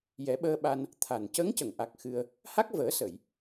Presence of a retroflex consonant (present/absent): absent